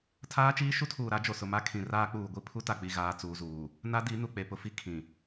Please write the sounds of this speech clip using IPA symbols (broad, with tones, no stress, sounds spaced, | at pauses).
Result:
tʰ aː˦ t͡ʃ iː˦ ʃ u˦ tʰ uː˨ ɾ a˨˦ d͡ʒ o˨ s ʊ˨ m a˦ kʰ ĩ˨ r aː˦ k͡p uː˨ ɡʷ i˦ pʰ u˦ t a˨ k͡p i˨ ɣ aː˨ t͡s uː˨ z uː˨ | n a˦ d i˨˦ n u˨ k͡p e˨ p ʊ˨ f i˦ kʰ ĩ˨